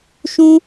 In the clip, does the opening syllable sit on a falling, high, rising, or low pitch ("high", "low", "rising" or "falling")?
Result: high